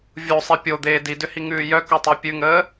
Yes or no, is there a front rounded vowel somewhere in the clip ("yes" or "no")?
yes